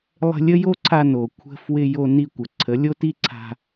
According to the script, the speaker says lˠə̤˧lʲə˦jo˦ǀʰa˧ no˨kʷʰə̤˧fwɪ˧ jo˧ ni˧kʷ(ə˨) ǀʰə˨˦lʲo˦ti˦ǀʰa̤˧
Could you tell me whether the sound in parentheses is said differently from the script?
no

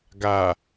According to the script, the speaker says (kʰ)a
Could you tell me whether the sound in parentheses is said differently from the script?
yes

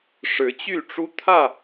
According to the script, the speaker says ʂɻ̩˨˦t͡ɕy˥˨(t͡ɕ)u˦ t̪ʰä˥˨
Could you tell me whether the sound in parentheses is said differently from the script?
yes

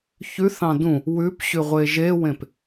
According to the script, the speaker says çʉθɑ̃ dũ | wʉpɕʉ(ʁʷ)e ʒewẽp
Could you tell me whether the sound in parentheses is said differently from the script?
no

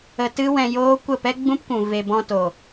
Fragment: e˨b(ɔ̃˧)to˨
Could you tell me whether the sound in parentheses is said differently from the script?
no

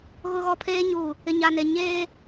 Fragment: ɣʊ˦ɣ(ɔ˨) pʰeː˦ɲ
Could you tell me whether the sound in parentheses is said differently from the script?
yes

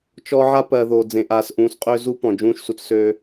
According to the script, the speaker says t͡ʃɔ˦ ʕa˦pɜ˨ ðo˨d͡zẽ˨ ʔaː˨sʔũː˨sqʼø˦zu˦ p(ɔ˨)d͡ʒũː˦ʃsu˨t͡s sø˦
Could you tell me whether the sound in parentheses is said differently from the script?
yes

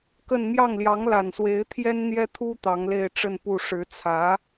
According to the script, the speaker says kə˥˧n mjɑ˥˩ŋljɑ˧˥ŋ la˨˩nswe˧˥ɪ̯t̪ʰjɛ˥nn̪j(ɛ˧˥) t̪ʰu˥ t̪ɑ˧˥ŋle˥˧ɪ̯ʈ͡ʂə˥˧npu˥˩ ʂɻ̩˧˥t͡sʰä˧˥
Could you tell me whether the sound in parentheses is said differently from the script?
yes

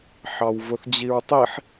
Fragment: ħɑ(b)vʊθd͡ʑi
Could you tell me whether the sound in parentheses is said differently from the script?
yes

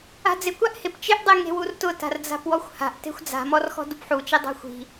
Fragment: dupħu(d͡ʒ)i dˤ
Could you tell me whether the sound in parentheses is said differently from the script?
yes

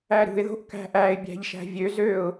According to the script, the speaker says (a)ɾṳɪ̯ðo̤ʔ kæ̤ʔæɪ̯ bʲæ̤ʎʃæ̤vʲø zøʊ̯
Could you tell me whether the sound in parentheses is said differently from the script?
yes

